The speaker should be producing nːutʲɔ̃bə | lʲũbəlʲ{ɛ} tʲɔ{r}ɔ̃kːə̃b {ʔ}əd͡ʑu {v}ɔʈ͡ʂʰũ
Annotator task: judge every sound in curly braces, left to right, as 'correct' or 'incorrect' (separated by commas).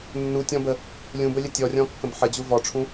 incorrect, incorrect, incorrect, correct